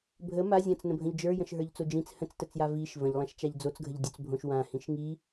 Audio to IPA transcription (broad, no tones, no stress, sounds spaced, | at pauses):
bʱ ə m a zʲ ã t͡s n ə̃ bʱ ə̃ ʎ d͡ʒ ə˞ j ə̃ ʃ ɦ ə˞ ʎ t͡s o d͡ʒ ĩ t͡s h ə̃ t͡s t ə t͡s j a v i ʃ v ə̃ ʎ lˠ ã ʃ t͡ʃ a ʎ d͡z o t͡s ɡʱ ə ʎ dʲ ɵ t͡s bʱ õ ʃ w ã h ĩ ʃ ŋ i